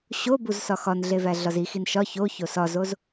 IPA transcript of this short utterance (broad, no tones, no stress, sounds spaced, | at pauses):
ɕ o b u z s ɒ x ɒ n ɮ e v æ ɮ ɒ z i x i n ʃ ɒ ç o ç o s ɒ z o z